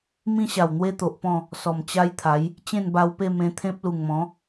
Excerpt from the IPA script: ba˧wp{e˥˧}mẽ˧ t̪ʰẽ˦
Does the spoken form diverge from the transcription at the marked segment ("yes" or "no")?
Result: no